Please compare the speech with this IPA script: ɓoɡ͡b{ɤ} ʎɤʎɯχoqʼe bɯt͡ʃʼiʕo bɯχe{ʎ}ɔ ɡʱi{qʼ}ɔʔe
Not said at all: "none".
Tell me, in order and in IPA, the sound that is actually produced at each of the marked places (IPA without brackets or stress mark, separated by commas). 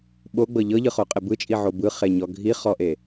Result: ɤ, ɲ, χ